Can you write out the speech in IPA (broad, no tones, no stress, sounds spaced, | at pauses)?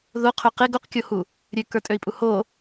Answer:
ð o qʰ ø q e ɡ o q kʲ o h u | ɾʲ ø k ə˞ tʼ ø i̯ pʼ u h o